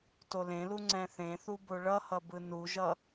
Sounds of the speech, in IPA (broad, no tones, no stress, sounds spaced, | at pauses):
t o l ẽ l u ŋ͡ǀ ɛ̃ θ ẽ θ u b o ɭ ʌ h ʌ b ɯ n u ʒ ʌ